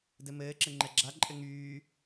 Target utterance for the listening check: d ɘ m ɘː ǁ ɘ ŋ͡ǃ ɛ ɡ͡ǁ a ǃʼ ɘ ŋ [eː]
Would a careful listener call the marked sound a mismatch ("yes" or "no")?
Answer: yes